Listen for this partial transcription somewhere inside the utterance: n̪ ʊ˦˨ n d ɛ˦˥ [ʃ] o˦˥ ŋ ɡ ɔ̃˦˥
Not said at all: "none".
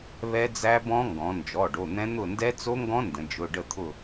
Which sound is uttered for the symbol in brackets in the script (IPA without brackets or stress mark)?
t͡s